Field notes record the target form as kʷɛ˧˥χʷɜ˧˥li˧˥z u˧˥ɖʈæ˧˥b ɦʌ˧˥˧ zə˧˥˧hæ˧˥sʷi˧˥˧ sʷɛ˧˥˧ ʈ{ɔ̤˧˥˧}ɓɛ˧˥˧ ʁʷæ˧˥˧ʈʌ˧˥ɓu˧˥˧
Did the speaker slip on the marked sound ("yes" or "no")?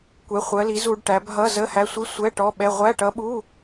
yes